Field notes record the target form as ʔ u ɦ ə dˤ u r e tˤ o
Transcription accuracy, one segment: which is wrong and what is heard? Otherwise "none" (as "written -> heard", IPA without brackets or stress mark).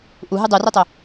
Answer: ə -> ɨ